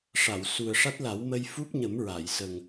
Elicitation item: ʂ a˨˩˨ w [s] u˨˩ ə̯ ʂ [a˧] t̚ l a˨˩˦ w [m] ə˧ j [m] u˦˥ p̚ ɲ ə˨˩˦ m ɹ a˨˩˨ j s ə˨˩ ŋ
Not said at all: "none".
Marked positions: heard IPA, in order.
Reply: s, a˦˥, m, f

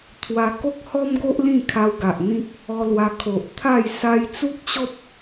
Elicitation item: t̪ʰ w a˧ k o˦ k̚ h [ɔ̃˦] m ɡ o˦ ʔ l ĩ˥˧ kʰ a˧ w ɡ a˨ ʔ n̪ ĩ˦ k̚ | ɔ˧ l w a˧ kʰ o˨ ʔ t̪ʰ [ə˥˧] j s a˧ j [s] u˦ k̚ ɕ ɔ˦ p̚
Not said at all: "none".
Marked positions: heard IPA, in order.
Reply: ɔ˦, a˥˧, t͡s

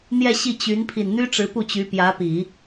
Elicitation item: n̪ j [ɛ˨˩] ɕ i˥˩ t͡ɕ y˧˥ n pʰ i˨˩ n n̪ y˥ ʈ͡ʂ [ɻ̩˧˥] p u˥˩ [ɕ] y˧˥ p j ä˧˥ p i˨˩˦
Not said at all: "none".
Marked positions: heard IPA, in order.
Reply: ɛ˥˧, ɻ̩˧˥, t͡ɕ

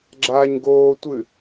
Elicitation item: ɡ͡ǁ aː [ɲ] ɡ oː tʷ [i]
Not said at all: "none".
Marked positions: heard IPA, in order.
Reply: ɲ, ɨ

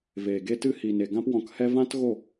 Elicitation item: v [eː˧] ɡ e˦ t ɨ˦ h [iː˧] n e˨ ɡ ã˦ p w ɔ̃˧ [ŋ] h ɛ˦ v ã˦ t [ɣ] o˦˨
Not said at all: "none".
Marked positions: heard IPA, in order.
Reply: eː˨, iː˨, k, ɣ

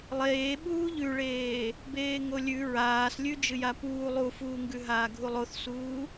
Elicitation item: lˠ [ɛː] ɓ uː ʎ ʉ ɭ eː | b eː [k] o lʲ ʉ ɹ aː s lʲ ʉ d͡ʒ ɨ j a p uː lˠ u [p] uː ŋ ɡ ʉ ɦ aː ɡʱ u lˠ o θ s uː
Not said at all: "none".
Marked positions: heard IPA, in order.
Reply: eː, ŋ, f

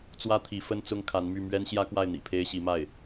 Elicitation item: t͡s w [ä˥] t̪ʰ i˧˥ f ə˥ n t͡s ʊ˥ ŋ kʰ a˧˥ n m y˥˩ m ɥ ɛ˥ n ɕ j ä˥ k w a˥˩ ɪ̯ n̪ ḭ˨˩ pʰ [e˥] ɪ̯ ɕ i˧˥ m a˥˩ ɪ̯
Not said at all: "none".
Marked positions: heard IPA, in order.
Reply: ä˥, e˥

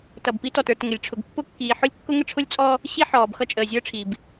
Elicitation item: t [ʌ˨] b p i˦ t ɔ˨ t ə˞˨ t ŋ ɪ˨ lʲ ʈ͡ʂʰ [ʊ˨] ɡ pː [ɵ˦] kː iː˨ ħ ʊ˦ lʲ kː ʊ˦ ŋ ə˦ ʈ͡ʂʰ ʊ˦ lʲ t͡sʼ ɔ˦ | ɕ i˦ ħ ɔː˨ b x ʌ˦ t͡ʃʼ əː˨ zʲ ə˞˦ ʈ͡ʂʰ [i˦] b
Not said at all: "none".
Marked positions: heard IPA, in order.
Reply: ʌ˨, ʊ˨, ʊ˦, i˨

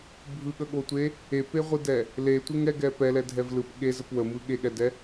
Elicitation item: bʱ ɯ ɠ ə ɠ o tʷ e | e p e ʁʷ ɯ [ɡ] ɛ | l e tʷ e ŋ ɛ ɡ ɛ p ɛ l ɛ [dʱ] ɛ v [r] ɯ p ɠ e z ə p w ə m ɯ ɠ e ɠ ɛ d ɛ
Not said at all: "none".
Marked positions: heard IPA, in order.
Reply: d, dʱ, l

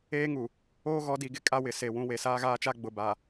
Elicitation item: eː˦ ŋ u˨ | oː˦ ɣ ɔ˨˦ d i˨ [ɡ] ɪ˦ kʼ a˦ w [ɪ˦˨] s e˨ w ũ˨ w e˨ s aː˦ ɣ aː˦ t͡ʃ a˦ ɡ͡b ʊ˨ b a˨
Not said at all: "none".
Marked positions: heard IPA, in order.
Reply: ɡ, ɪ˨

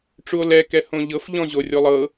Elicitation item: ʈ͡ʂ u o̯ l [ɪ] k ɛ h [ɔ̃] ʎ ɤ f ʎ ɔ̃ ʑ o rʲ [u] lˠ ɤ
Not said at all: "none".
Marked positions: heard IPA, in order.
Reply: ɛ, õ, o

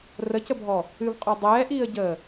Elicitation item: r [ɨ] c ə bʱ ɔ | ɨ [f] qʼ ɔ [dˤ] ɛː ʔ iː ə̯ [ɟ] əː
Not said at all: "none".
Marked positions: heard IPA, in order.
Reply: ə, v, dˤ, ɟ

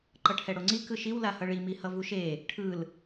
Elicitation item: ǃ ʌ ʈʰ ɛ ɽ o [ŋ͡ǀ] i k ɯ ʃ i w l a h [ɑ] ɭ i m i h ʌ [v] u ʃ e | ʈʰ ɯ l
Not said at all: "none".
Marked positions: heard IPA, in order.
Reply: ŋ͡ǀ, ʌ, v

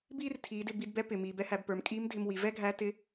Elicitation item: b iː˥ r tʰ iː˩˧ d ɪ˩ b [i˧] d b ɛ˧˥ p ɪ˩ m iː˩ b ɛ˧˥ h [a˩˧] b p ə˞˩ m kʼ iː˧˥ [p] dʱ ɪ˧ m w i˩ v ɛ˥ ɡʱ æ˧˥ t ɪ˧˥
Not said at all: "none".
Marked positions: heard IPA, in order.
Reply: i˧, æ˩˧, m

